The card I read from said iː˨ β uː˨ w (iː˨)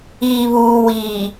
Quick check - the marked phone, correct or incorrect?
correct